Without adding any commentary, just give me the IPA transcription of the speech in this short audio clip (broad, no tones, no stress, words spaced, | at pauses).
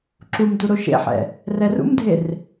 ǁum duɾoʃḛħɛ̰ | rɛrṵmdʱer